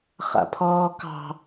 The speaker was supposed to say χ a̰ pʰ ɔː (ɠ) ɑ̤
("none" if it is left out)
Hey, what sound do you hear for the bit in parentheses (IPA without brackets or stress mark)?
k